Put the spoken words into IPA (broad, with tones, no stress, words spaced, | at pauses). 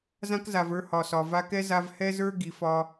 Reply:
zã˦kza˨və˞˦ hɒ˨sɒ˨ va˧kɛ˦ za˧vhɛ˦zə˞˦ ɡi˨ fɒ˧